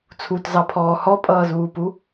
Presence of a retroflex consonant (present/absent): absent